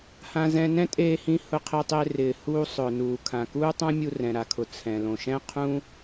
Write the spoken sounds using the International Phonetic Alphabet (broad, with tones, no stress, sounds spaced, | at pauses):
h ã˧ z ɛ̃˧ n ɛ̃˥ tʼ eː˧ h ĩ˧ h ʊ˧ qʰ ɪː˧ tˤ ɪː˧ r ɪː˩ h uː˧ sˤ ʊː˩ n uː˩ kʰ ã˩ k uː˥ tˤ ã˥ mʲ u˧ r ɛ̃˩ ɾ a˩ kʰ ʊ˩ t͡sʰ ɛ̃˩ l õ˩ ʃ ɛ̃˥ qʰ ũ˥